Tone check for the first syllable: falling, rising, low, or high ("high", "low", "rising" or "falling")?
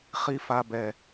high